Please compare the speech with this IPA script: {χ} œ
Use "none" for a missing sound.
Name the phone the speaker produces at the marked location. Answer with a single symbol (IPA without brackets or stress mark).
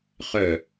χ